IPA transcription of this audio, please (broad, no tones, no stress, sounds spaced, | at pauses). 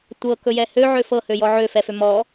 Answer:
tʷ ɤ k ɵ j ɛ h ø ʕ ø f ɤ h ø j ɔ ʕ ø f ɛ f ø m ɔ